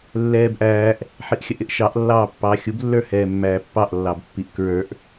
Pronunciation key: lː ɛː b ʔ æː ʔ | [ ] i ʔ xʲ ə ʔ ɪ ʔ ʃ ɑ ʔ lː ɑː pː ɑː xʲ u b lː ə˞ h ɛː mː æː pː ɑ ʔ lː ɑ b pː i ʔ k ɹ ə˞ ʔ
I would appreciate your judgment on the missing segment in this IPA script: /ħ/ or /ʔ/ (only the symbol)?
ħ